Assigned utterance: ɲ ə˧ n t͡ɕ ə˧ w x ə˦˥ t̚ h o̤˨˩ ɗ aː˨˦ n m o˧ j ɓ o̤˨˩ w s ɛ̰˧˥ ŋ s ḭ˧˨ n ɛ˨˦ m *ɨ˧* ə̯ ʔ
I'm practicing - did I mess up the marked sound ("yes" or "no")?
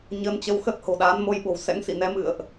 yes